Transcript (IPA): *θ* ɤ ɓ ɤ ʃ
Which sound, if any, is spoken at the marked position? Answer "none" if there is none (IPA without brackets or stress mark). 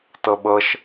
t